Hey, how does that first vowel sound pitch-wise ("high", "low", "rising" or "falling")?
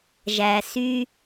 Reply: low